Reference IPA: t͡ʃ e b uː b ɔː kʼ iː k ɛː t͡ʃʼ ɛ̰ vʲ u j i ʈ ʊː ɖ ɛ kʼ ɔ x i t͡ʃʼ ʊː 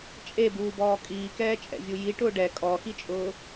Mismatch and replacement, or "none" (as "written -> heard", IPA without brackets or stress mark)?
t͡ʃ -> t͡ʃʼ